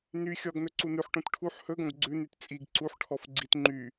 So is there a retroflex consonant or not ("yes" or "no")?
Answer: yes